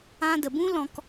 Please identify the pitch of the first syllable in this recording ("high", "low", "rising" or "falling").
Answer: high